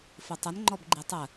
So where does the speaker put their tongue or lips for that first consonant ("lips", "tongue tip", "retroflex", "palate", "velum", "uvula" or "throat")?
lips